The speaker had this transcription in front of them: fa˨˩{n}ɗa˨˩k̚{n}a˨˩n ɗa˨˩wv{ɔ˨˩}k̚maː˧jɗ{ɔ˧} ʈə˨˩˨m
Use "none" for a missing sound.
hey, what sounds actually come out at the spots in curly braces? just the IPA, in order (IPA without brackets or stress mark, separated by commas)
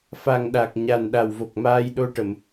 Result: ŋ, ɲ, o˨˩, o˧